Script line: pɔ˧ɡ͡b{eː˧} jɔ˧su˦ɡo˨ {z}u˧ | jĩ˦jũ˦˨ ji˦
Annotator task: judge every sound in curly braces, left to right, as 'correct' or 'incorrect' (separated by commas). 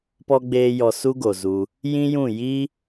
correct, correct